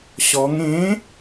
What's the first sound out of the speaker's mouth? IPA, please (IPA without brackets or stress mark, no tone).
ɕ